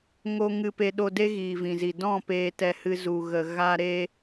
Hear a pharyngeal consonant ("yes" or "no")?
no